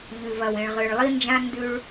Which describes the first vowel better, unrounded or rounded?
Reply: rounded